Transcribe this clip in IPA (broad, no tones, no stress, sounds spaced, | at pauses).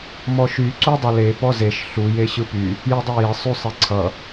m ɔ ʃ y ǀ u dˤ ʌ l e p ɔ z e ʃ ɬ u j e ɕ ɯ p y | j ɯ dˤ ɯ j e sˤ y sˤ e ǀʰ ʌ